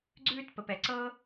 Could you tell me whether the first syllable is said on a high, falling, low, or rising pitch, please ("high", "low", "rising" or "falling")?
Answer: high